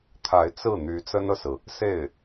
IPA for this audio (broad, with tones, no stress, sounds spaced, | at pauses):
t̪ʰ a˧˥ ɪ̯ t͡s ɹ̩˥˩ n̪ y˧˥ t͡s ə˥ n ɤ˨ s ɹ̩˩ | s e˥˩ ɪ̯